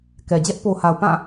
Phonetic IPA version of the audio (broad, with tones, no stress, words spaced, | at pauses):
kɛ˨ d͡ʑɛ˦ʔpo˨ha˨ʊ̯ pã˦˨